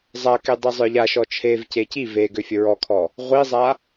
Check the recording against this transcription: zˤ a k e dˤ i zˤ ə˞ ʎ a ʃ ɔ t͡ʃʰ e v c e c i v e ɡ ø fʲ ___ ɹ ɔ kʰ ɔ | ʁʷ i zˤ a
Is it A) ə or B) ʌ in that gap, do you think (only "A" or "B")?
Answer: A